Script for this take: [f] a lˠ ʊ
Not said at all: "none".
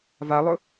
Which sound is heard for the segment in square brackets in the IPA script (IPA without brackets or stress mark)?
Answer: v